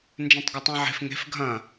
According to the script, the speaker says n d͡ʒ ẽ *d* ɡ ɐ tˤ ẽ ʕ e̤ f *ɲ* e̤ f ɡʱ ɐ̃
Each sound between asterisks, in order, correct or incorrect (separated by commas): incorrect, incorrect